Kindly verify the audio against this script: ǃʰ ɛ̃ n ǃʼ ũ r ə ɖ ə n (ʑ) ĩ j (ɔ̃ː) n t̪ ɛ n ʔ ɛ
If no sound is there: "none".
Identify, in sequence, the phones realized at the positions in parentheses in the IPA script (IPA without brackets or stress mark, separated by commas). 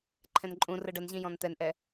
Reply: ʑ, ɔ̃